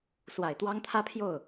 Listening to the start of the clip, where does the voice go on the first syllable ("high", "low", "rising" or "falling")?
low